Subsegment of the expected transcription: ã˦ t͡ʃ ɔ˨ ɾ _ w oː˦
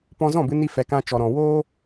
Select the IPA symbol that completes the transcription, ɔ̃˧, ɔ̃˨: ɔ̃˨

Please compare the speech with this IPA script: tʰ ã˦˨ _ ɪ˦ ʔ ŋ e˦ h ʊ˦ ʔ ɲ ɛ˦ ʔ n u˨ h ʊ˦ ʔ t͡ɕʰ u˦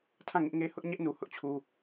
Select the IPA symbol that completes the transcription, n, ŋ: ŋ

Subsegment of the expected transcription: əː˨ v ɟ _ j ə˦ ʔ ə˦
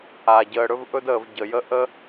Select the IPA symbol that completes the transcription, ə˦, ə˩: ə˩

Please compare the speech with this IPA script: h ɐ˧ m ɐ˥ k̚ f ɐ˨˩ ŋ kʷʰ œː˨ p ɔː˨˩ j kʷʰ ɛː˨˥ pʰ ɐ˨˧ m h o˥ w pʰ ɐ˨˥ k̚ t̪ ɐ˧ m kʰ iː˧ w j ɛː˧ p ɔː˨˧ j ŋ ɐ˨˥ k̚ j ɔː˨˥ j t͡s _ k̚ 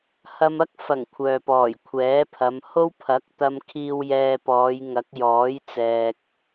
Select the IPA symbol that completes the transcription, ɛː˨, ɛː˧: ɛː˨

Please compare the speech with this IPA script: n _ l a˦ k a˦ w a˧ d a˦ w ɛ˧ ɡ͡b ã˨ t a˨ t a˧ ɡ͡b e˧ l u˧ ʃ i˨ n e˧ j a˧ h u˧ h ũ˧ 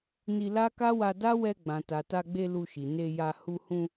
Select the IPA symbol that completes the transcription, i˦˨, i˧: i˧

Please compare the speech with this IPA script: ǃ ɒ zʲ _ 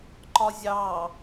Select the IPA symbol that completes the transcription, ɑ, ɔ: ɑ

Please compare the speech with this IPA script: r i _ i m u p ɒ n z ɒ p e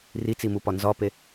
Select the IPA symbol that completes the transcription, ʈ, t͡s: t͡s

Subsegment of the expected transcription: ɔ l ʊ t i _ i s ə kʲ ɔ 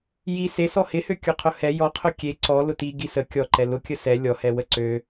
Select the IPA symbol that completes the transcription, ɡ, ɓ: ɡ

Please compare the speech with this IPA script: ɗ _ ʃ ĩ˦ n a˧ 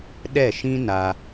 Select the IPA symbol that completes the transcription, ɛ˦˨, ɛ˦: ɛ˦˨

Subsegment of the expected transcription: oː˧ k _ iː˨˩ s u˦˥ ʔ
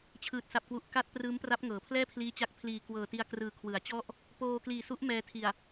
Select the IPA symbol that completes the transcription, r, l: l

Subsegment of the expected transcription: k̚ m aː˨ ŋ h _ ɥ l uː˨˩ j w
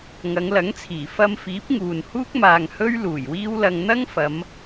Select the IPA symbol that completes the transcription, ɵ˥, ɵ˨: ɵ˥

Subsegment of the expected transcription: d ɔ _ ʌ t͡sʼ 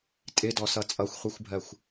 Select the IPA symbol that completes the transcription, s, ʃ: s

